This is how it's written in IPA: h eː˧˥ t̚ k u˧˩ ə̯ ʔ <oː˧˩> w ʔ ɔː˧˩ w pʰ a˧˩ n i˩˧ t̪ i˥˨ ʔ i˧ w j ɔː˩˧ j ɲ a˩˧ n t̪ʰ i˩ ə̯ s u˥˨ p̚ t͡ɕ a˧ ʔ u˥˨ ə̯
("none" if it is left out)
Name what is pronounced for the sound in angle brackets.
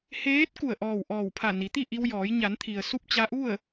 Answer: ɔː˧˩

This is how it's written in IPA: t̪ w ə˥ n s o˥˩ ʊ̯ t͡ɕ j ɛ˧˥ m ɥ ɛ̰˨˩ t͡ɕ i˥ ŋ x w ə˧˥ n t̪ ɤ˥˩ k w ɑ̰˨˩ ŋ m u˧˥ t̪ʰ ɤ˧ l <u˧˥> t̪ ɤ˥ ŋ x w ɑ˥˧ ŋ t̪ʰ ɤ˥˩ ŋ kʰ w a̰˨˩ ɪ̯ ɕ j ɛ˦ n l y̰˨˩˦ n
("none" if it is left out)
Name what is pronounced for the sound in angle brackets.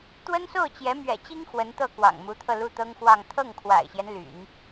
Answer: u˥˩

